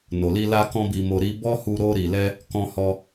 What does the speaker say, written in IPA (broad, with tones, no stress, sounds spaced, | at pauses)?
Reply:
n o˨ l i˧ l a˦ k ɔ̃˦ b i˧ m o˧ ɾ i˧ b ɔ˦ h u˧ ɾ o˧ ɾ i˨ l ɛ˧ | k ɔ̃˧ h ɔ˧